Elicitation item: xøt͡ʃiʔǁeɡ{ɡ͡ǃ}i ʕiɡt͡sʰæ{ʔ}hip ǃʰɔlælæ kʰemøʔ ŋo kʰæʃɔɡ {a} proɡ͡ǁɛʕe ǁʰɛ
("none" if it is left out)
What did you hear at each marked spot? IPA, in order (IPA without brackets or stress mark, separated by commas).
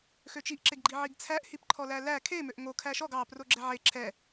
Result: ɡ͡ǃ, ʔ, ɑ